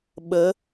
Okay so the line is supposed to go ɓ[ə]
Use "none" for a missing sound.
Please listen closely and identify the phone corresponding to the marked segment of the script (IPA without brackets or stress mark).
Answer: ə